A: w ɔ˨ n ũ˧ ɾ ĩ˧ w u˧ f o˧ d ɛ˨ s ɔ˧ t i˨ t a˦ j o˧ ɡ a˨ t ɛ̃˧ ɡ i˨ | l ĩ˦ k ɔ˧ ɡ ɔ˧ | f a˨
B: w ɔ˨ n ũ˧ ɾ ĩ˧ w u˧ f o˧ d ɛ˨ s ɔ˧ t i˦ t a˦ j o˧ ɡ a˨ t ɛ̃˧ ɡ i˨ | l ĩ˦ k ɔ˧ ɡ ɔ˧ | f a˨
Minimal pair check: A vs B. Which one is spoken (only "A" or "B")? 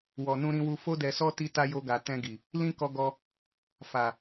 B